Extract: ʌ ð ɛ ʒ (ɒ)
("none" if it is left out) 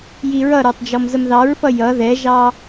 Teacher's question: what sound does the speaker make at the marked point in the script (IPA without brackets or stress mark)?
ɑ